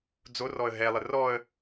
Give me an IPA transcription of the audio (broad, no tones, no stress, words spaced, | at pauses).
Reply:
d͡zorɔə̯ ɦɛlˠə rɔə̯